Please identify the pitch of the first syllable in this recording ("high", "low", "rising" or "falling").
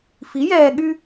rising